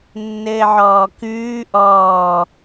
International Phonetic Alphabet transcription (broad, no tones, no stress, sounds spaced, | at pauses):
nː ɘː ʕ ɔː k ʉː ʔ ɔː